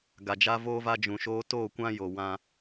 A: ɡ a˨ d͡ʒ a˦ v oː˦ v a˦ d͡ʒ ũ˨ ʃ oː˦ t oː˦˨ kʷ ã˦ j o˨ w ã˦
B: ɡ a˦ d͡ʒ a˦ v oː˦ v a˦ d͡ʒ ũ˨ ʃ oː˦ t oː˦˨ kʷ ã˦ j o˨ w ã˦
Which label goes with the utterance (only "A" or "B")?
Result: A